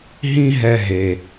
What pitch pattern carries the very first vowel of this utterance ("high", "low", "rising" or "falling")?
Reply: high